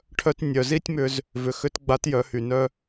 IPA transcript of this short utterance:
ʈʰ œ˧ t nʲ œ˩ z i˥ tʲ m ʏ˧ z | v ʏ˩˧ x ʏ˧˥ t ɡ͡b a˧˥ t j œ˩˧ h y˩ n œ˧

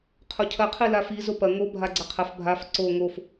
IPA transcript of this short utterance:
qʰ o cʰ ɐ qʰ i l a f i z o p ɐ ŋ o bʱ a ɡ͡ǀ ɐ qʰ ɐ f bʱ a f ǀ o ŋ o f

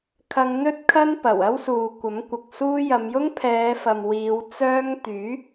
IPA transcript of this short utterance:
kʰ ɐ˧ ŋ n̪ ɵ˥ t̚ kʰ ɐ˥ n p ɐ˨˩ w ɐ˥ w s uː˨ kʷ ɐ˨˥ m kʷ ɐ˨ k̚ s uː˥ j ɐ˨˧ m j ʊ˥ ŋ pʰ ɛː˨˧ f ɐ˨ m w iː˨˧ w t͡s œː˥ ŋ t̪ yː˨˥

